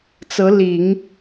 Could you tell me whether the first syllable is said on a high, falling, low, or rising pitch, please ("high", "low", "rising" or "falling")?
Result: rising